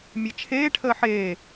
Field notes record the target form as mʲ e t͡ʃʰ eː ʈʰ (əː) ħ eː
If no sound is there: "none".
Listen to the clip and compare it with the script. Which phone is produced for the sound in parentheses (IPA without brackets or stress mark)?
əː